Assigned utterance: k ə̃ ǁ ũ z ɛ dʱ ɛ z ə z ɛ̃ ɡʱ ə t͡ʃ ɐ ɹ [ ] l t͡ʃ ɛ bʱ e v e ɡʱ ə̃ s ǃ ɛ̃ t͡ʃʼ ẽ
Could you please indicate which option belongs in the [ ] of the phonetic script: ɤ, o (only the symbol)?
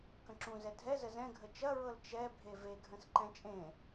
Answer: ɤ